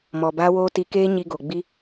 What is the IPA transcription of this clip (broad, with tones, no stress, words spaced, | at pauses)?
mɔ˨baː˦woː˦ ti˧keː˦ɲi˧ ɡo˨ɡ͡bi˦